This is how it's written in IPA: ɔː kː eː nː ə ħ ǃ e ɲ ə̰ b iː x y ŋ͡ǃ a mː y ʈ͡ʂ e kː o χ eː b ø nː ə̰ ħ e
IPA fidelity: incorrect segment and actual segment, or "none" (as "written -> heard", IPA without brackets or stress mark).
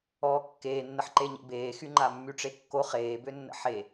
iː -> eː